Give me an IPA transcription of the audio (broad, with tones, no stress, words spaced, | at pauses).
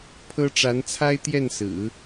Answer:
pʰɤ˥ ʈ͡ʂa˧˥nt͡sʰa˥ɪ̯t̪jɛ˥˩nsɹ̩˨˩˦